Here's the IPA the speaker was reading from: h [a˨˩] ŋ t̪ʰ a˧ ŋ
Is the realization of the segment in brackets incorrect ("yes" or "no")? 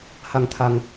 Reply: yes